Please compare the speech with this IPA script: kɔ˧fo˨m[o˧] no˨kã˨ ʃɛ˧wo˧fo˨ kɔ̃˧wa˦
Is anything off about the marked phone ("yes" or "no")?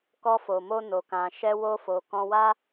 no